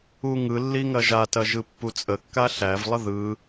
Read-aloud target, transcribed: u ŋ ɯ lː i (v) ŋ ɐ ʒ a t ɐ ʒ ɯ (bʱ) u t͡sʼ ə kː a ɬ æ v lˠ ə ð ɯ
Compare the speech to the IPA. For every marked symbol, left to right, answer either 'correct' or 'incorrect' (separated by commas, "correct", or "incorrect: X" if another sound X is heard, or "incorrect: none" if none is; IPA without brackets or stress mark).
incorrect: none, incorrect: pː